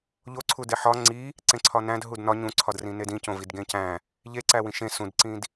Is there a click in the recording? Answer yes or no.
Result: yes